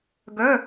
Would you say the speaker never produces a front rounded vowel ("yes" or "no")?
no